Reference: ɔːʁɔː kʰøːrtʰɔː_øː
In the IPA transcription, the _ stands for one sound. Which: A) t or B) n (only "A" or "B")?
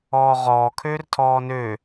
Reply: B